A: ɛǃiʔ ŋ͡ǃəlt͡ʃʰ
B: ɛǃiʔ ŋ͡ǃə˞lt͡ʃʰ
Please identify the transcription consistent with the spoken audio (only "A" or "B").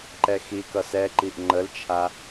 A